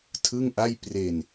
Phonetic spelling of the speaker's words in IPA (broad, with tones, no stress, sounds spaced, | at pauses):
tʰ ɯ˥˩ ŋ ʔ a˥˩ j p r e˧ n